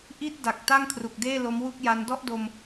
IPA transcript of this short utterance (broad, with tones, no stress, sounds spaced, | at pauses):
ʔ i˥˩ t̚ d a˨˩ k̚ t a˥˩ ŋ kʰ r u˨˩ k̚ d eː˥˩ l o˦˥ m w u˥˩ k̚ j a˦˥ n d ɔ˥˩ ʔ d o˧ m